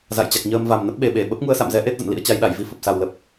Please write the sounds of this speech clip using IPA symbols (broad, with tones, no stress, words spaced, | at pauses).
za̰˧˨jt͡ɕa˨˩k̚ɲəː˧mva˨˩m nə˦˥p̚ɓe˨˩ɓe˧˩ ɓə˦˥p̚ŋu˧ə̯sa̰˧˨mzɛ˨˦ ʔe˦˥t̚zə̰˧˨n lḭ˧˥ə̯t͡ɕa˨˦jɗa˧˩jvi˧ fə˨˩p̚sa˨˩wlə˨˩p̚